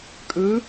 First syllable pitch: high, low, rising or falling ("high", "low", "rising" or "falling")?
rising